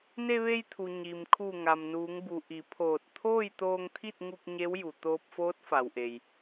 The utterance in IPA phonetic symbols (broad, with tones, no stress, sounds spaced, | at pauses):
n e˧ ʋ e˧ j t̪ʰ u˩ ɲ i˩ m kʰ u˧˩ ŋ a˩ m n uː˩˧ ŋ b u˩ ʔ i˩˧ pʰ oː˧˩ t̚ t̪ʰ oː˥˨ j t̪ oː˧ ŋ t̪ʰ i˥˨ t̚ ŋ u˧ k̚ ɲ e˧˥ w j u˩ t̪ oː˧ p̚ f oː˧˥ t̚ f a˩ w ʔ e˩ j